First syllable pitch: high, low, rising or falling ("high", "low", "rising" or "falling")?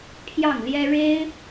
falling